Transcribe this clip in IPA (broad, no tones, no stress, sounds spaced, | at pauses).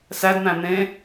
s æ d n̪ æ̃ n̪ ẽ